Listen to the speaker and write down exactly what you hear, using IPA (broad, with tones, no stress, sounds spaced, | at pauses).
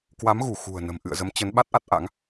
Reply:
k w a˨˦ m ɣ u˧˩ x ṳ˨˩ ə̯ n ə̤˨˩ m ʔ ɨ̰˧˨ ə̯ z ə˨˦ m t͡ɕ ə˨˦ n ɓ a˦˥ t̚ ʔ a˦˥ t̚ ʔ a̰˧˥ ŋ